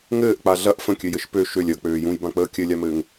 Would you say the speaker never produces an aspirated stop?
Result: yes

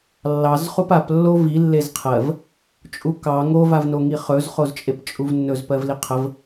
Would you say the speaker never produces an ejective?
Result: no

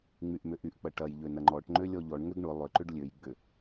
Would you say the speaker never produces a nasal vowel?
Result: yes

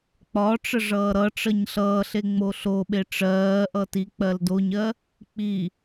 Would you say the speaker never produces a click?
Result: yes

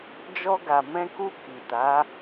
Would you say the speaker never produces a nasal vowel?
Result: no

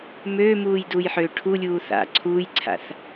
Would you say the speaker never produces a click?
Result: no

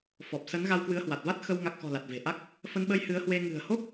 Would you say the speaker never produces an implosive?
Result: no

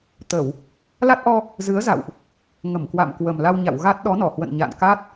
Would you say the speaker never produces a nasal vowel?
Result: yes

